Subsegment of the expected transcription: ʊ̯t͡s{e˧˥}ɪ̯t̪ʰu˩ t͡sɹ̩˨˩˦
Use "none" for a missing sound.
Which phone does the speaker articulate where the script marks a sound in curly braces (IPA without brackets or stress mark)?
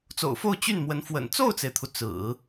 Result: e˩